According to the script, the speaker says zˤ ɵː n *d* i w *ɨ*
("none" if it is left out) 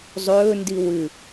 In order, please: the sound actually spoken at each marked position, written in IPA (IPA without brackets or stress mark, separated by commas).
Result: d, ɨ